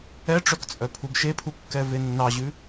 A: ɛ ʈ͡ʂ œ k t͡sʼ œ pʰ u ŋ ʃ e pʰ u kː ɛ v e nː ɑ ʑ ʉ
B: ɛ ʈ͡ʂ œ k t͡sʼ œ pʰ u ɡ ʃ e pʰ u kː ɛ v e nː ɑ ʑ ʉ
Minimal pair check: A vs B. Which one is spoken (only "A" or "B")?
B